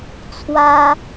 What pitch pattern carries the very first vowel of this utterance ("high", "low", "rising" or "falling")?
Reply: high